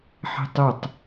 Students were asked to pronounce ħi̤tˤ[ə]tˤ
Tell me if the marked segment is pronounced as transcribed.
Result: yes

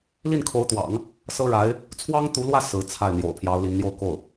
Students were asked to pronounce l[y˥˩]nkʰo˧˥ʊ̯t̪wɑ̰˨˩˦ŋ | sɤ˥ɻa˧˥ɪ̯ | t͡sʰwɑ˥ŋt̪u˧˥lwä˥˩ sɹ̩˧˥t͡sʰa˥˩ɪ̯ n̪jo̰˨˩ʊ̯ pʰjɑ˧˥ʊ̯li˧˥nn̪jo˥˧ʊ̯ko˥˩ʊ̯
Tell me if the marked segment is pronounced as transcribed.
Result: no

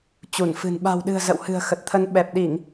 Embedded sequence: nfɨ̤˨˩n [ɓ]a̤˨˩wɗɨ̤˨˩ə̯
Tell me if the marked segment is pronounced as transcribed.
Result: yes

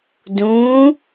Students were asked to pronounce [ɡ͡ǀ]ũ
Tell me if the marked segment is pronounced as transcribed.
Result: no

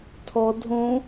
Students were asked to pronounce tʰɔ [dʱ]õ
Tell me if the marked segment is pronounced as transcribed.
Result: yes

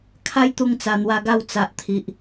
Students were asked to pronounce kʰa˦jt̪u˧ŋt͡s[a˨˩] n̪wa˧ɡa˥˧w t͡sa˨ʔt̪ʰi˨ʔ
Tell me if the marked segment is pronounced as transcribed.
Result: yes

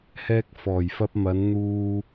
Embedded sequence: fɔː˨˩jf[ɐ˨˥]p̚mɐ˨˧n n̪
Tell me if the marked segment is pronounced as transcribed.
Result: no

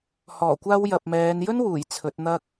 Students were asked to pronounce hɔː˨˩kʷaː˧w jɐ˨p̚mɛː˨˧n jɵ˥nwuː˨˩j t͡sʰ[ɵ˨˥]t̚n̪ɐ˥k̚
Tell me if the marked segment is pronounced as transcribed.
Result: yes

